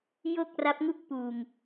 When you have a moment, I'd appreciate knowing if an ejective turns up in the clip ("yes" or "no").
no